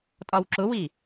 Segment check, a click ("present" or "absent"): present